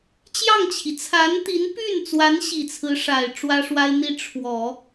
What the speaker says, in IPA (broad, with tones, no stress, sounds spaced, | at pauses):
t͡ɕ j ɑ˥˩ ŋ t͡ɕʰ i˩ t͡sʰ a˧˥ n t̪ i˧˥ n p y˥˩ n t͡s w a˧˥ n ɕ i˨˩ t͡sʰ ɹ̩˧˥ ʂ a˨˩ ɪ̯ ʈ͡ʂ w ä˥ ʂ w a˥ ɪ̯ n̪ i˥˩ ʈ͡ʂʰ w ɔ˨˩˦